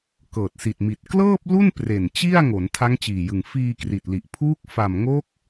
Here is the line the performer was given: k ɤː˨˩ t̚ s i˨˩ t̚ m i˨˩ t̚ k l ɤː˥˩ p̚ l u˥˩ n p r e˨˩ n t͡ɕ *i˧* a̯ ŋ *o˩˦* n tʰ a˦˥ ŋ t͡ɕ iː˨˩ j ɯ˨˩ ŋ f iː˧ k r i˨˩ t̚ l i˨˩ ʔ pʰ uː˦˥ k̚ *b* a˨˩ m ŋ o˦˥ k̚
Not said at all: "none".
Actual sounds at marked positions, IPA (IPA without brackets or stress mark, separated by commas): i˥˩, o˩˦, f